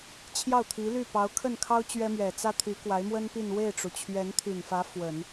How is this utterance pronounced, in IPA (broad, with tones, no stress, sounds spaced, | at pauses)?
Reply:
t͡ɕʰ j ɑ˥˩ ʊ̯ t̪ʰ i˧˥ l y˥˩ p ɑ˧˥ ʊ̯ kʰ ə˥˩ n kʰ ɑ˥ ʊ̯ t͡ɕ ɥ ɛ˥ m ɥ ɛ˨˩ t͡s ä˥ t̪ʰ y˧˥ k w a˧˥ ɪ̯ m w ə˥ n p i˥˧ n w e˥˩ ɪ̯ ʈ͡ʂ u˩ t͡ɕʰ ɥ ɛ˧˥ n t̪ʰ y˨˩ n f ä˧˥ f w ə˨˩˦ n